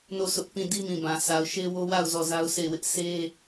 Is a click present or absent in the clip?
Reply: absent